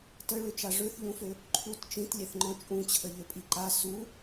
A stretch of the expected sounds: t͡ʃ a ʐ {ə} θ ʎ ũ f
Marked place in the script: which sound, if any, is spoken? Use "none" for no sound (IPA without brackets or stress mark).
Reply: ø